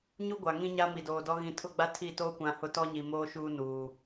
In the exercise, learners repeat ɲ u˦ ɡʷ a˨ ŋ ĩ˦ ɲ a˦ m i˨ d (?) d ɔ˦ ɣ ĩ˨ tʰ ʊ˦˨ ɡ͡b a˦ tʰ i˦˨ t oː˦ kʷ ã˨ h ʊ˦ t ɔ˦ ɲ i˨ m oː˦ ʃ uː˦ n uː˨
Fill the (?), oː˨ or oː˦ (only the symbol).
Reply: oː˨